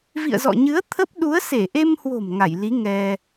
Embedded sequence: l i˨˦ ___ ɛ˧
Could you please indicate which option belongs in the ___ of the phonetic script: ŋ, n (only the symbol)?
ŋ